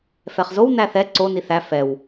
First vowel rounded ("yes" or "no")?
no